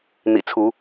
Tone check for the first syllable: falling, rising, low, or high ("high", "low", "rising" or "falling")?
low